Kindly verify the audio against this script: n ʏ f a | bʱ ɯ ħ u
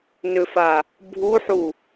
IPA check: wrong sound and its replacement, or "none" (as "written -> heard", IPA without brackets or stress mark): ɯ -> u